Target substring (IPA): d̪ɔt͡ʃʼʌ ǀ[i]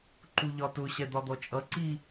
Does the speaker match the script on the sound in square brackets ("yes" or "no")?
yes